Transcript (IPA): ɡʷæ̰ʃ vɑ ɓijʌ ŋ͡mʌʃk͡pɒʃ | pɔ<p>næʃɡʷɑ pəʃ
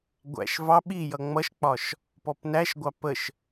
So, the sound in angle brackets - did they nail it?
yes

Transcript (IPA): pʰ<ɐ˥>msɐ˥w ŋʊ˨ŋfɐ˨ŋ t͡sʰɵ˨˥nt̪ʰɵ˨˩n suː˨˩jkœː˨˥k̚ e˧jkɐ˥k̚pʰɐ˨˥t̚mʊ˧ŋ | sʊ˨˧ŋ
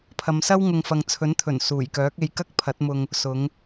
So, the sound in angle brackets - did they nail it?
no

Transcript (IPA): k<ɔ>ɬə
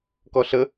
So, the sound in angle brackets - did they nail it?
yes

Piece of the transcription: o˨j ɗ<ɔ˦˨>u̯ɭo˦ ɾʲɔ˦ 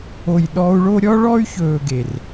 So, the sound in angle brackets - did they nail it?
no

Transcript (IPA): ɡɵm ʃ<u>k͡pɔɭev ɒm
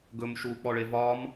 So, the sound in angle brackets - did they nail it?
yes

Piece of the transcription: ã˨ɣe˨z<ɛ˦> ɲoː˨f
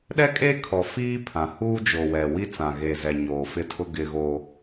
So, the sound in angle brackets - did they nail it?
no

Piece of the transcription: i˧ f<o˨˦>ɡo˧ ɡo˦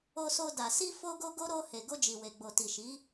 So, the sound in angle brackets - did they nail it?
no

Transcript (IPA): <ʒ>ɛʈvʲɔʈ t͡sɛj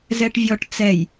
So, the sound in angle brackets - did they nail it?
no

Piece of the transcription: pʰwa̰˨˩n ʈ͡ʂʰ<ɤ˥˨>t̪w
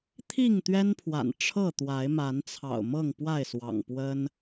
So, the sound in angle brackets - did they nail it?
yes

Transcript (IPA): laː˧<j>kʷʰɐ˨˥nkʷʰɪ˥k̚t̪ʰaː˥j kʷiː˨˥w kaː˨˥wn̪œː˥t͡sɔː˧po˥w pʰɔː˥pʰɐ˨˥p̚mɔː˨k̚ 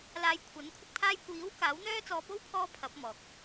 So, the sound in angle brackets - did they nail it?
yes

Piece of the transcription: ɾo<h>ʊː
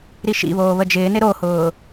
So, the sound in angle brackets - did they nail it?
yes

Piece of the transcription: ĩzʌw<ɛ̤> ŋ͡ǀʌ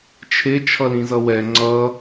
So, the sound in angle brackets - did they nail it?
no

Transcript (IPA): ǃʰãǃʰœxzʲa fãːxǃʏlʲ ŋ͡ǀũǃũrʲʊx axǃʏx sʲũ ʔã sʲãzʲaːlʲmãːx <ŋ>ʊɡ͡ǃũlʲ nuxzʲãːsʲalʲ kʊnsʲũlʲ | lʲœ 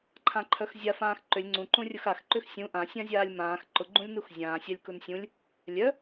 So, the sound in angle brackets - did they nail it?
no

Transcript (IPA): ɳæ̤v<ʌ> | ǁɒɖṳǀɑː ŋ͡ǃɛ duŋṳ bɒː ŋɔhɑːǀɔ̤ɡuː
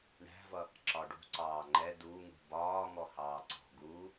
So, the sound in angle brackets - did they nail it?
yes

